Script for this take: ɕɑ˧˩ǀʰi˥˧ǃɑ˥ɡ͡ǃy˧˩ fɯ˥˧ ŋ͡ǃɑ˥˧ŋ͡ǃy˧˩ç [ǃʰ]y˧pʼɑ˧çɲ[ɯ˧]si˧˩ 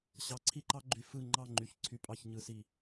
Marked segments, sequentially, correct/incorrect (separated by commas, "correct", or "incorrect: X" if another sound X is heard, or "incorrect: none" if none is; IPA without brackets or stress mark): incorrect: ǀʰ, correct